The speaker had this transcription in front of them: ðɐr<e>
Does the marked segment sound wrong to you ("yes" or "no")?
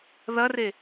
no